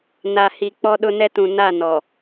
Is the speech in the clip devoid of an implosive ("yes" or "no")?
no